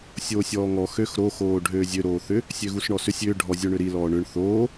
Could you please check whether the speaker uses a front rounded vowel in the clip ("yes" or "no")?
yes